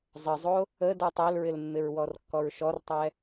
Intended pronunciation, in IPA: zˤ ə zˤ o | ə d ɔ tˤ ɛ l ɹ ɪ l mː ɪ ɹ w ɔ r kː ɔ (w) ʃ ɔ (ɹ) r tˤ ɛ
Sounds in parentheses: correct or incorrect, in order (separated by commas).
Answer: incorrect, incorrect